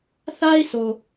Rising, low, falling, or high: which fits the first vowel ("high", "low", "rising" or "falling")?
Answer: high